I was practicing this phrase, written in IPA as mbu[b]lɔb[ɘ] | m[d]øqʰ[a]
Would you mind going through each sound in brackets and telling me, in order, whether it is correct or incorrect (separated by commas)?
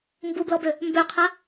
correct, incorrect, incorrect, correct